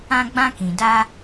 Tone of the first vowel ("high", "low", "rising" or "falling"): high